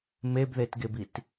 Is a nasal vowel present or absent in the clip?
absent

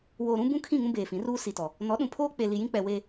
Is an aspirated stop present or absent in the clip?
present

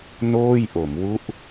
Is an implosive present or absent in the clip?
absent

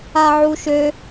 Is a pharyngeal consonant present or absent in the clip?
present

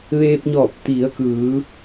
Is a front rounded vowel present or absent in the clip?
absent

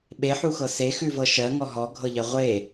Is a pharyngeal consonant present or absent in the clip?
present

